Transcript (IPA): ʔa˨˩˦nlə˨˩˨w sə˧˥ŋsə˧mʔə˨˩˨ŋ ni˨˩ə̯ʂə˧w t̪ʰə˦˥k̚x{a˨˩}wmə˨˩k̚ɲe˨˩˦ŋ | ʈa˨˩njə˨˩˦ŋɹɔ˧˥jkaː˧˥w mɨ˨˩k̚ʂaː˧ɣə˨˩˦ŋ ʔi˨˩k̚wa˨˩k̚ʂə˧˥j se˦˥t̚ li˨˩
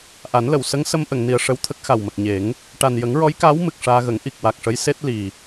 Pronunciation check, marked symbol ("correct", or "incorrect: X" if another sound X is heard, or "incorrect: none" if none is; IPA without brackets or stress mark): correct